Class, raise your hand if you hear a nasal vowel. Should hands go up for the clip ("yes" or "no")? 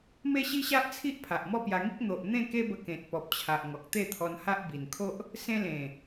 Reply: yes